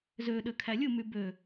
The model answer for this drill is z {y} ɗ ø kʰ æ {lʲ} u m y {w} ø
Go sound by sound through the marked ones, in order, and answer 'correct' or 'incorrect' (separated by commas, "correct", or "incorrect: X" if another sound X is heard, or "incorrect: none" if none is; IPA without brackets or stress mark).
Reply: incorrect: ø, correct, incorrect: b